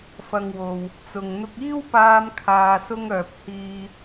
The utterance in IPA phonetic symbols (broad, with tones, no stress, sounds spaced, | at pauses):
f ɐ˨ ŋ w o˨ w | t͡s ʊ˨ ŋ n̪ ʊ˧ k̚ iː˥ w p aː˧ m kʰ aː˨ s ʊ˧ ŋ œː˨ p̚ h iː˨